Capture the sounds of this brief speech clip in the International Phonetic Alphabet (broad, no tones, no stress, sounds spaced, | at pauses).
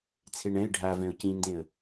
t͡sʰ e ɳ ɛ̃ ɪ̯ ɖʱ a v ɛ̃ ʊ̯ c ĩ n d ẽ ə̯